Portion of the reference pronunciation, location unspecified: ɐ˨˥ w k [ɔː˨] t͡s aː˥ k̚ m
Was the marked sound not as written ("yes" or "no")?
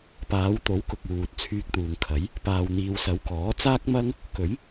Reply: yes